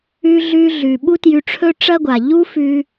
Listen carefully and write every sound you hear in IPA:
ʉ˧ ɮ ʉ˧ ɮ ʉ˩ ɓ u˥ t j ʉ˧ ʈ͡ʂʰ ɵ˥ ʈ͡ʂ ɐ˥ ɡʷ a˩ ʎ u˥ f ʉ˧

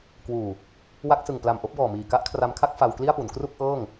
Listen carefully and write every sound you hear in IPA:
k w uː˨˩ | w a˦˥ k̚ s ɯ˨˩ ŋ p l a˨˩ m ʔ o˦˥ k̚ b ɔː˨˩ m iː˨˩ k a˦˥ ʔ kʰ r a˧ m kʰ a˥˩ k̚ f a˧ w k l i˥˩ a̯ p u˩˦ n k r u˥˩ k̚ ʔ ɤː˥˩ ŋ

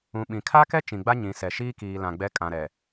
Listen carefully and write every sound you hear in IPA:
ũ˨ ɓ ĩ˨ kʰ a˦ k ɛ˦ t͡ʃ ĩ˨ ɡ͡b a˦ ɲ ĩ˨ s ɛ˨ ʃ iː˦ k iː˨ l ã˨ ɡ͡b ɛ˨˦ kʼ ã˨ ɾ ɛ˨

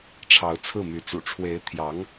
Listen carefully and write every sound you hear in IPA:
ʈ͡ʂʰ ɑ˧˥ ʊ̯ t͡sʰ ɹ̩˥˩ m y˧˥ t͡s ṵ˨˩ ʈ͡ʂʰ w e˧˥ ɪ̯ t̪ʰ j ɑ˧˥ ŋ

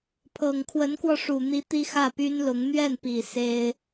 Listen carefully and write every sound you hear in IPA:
pʰ ɤ˨˩ ŋ kʰ w ə˧˥ n k w ɔ˧ ʂ u˨˩ n̪ i˧˥ t̪ i˥ x ä˥˩ p y˥ n l ʊ˧˥ ŋ n̪ ɥ ɛ˥˩ n p i˨˩ s e˥ ɪ̯

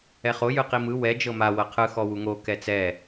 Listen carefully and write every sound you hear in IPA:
ɛ χ o j ɯ q i m ɯ w ɛ d͡ʒ ɤ m a w ɤ qʰ ɯ x ɔ w u ŋ o k ɛ t͡s ɛ

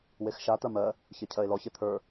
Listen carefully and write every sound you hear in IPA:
w e x ʃ a t̪ ɜ m ɜ | ç e cʰ ɜ e̯ l ɔ ç e t̪ʰ ə˞

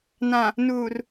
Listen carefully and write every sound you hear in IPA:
n ã˨ | n uː˨ r

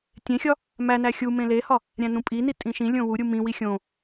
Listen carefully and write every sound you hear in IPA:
tʲ ẽ xʲ ɒ | m æ n æ xʲ u m ẽ l e h ɒ | ɾʲ æ̃ n ũ pʼ i n i tʼ ĩ ʃ ĩ lʲ õ w u ɾʲ u m ĩ w i xʲ õ

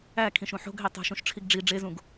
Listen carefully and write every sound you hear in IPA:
æ kʰ ĩ ʃ ũ ħ o̤ ɡ ɦ e tˤ o̤ ʃ ũ ʃ ʈ͡ʂʰ i ɡ ɖ͡ʐ i ɖ͡ʐ e z ũ ɡ

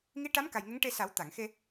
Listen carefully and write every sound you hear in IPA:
ŋ i˧˥ ʈ a˧˥ m k a˨˩ j ŋ ə˧˥ ŋ ʈ e˧ s a˨˩˦ w t̪ a˨˩˨ ŋ x e˧

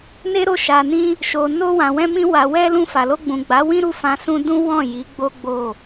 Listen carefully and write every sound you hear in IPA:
n e˦ ɾ o˦˨ ʃ a˨ n ĩ˧ | ʃ o˨ n o˧ w ã˨ w ɛ̃˧ m ĩ˧ w a˨ w ɛ˧ l ũ˧ f a˨ l o˧ ɡ͡b ũ˨ ɡ͡b a˨˦ w ĩ˦ ɾ u˦˨ f ã˧ s ũ˦ d ũ˦ w ɔ̃˦˨ j i˨˦ ɡ͡b o˦ ɡ͡b o˦˨

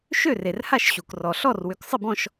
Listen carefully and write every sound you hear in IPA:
ʃ ø˥˨ r e˩ r h a˥˨ ʃ ɕ u˩ k r ɔ˩ ɬ ɔ˥˨ r w ʏ˩˧ k sˤ ɪ˥˨ b ɔ̃˥˨ ʃ

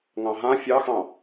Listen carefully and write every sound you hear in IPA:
ŋ ɑ̃ ɦ ã fʲ ɑ x ɑ̃

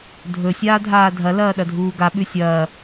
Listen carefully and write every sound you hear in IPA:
dʱ ɵ sʲ aː dʱ aː dʱ ɐ l ɐː ɗ ɐ dʱ uː ɡ a ɓ ʉ sʲ ɐː

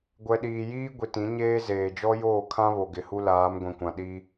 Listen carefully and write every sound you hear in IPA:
ɡʷ ɛ˨ ɗ iː˨ j iː˦ ɡʷ i˨ t ĩ˨˦ ɲ eː˦ z eː˨ d͡ʒ ɔ˦ j oː˦˨ kʰ ã˦ β o˨ ɡ ɪ˨ h u˦ l aː˨˦ m ɡʷ ĩ˨ kʷ ã˨ ɗ i˦

